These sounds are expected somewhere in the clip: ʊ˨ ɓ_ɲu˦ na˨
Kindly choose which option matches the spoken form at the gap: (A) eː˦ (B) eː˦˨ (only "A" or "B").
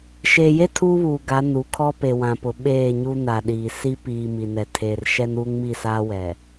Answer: B